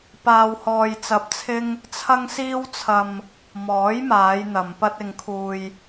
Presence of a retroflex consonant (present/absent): absent